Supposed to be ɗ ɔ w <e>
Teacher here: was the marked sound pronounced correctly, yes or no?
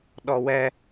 no